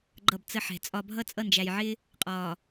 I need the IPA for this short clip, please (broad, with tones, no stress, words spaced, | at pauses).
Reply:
ɡ͡ǃʌ˦˨bt͡sə˦ħɛ̤˨t͡sʼɒ˦ bʱʌ˦t͡sʼʌ˦˨nd͡ʒæ˨jʕɪː˦ | qʼɒː˨